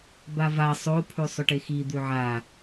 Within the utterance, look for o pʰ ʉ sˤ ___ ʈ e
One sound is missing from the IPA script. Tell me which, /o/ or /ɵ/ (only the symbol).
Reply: ɵ